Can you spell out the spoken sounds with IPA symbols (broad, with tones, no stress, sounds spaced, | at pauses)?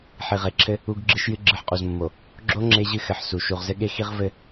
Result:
ħ i˨ ʁ e˨ ǁʰ ɘ˦ | u˦ ɡ ɡ͡ǁ ɨ˦ ʃ j ɨ˦ ɡ͡ǁ ɨ˨ ħ qʼ u˨ z mː o˨ | ɡ͡ǁ o˦ ŋ͡ǁ e˦ ʑ ɨ˦ x ɘ˨ ħ s u˨ ʃ u˨ ʁ z ɘ˦ ɠ e˦ x i˦ ʁ v ɘ˦